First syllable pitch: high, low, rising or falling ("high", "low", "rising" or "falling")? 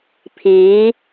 rising